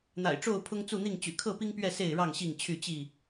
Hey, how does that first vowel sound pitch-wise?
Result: low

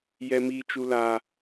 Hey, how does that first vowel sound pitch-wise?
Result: high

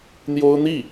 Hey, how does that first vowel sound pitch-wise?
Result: high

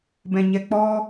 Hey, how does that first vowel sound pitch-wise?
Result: low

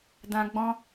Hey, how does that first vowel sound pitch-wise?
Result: high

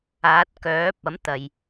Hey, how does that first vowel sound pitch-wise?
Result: rising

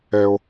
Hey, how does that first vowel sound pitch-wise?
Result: low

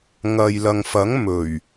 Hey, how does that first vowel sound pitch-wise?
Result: low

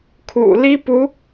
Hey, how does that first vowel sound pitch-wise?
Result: low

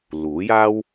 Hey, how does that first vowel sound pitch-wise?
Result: rising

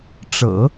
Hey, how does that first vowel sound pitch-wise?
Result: low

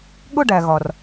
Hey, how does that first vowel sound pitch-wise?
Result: falling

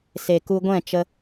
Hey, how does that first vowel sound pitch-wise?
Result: low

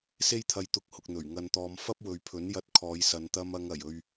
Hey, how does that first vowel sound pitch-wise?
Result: high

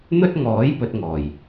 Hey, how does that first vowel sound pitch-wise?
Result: high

